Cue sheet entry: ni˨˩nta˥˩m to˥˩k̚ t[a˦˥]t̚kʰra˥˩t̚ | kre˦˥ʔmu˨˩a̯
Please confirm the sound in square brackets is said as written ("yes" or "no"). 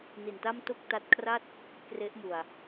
yes